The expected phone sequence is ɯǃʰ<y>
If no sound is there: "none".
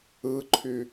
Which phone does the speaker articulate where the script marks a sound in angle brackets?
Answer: y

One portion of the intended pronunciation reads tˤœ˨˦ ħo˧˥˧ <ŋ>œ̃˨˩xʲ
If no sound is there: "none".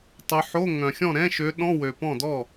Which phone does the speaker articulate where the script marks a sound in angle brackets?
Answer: ŋ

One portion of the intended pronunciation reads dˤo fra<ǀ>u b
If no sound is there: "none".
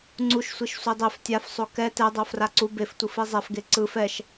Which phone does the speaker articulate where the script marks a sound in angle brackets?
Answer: ǀ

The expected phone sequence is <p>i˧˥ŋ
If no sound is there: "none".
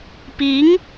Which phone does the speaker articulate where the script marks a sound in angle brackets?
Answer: p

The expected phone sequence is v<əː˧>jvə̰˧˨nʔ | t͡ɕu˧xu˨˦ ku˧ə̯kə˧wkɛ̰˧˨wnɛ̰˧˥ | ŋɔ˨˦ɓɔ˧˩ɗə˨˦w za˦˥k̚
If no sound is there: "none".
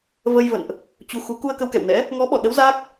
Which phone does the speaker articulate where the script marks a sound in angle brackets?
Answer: ə˧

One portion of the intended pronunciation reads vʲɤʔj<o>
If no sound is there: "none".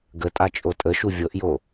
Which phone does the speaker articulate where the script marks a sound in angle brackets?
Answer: o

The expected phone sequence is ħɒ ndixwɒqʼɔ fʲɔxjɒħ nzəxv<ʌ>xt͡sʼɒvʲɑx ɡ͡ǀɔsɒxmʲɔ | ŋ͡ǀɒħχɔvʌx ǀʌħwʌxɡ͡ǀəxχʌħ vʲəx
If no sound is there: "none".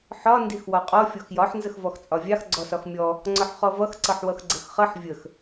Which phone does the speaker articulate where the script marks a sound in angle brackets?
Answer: ɔ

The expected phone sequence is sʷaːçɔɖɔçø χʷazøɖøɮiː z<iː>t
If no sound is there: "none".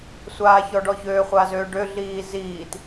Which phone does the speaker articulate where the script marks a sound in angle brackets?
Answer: iː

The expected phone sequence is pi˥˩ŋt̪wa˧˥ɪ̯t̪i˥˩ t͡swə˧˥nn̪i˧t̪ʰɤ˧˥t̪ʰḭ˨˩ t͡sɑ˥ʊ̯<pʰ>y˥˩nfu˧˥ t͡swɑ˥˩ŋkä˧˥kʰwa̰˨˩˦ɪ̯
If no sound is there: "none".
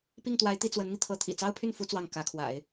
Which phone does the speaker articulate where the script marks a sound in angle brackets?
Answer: pʰ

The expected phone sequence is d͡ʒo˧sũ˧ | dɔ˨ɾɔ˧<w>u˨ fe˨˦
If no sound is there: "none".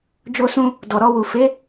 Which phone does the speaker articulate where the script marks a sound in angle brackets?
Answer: w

